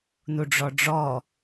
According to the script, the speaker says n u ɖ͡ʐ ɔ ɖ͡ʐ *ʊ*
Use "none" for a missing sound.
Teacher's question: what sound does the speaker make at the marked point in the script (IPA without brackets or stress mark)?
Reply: ɔ